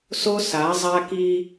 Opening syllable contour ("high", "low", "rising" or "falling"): high